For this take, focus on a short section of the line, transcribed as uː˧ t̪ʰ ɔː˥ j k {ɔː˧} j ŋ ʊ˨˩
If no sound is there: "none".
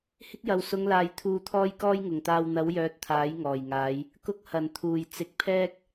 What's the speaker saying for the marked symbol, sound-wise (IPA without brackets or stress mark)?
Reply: ɔː˥